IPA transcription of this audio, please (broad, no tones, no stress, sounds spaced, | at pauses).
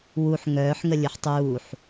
w u ħ ŋ œː ħ ŋ ə lʲ ɯ ħ tˤ uː ħ